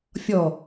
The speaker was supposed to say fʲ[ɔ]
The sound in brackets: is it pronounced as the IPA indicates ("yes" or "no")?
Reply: yes